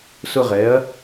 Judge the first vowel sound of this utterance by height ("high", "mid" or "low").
high